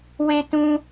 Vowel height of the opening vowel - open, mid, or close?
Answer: mid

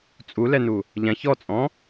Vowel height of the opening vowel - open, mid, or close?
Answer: close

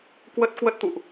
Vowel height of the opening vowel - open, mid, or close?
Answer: mid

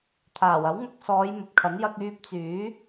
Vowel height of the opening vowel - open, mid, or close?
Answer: open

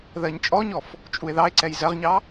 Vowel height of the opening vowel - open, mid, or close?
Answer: mid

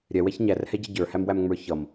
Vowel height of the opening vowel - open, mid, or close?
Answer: mid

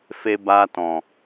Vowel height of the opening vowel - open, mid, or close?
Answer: mid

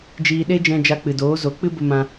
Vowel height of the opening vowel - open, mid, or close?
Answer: close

